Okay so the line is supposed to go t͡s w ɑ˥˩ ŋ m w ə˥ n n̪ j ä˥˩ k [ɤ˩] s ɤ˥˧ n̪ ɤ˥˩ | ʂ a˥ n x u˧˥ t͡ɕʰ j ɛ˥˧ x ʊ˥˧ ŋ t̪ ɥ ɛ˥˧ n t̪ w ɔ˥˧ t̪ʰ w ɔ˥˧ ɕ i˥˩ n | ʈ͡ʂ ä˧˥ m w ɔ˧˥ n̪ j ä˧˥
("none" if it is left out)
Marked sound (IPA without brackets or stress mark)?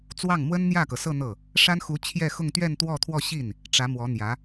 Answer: ɤ˩